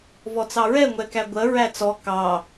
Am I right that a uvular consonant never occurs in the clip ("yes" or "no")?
yes